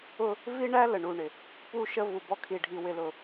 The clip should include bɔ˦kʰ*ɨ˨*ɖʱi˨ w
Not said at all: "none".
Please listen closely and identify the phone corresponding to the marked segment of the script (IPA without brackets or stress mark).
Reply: i˨